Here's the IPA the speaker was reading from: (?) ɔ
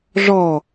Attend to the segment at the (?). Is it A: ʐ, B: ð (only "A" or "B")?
A